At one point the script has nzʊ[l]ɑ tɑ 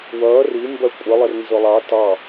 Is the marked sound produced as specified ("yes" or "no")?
no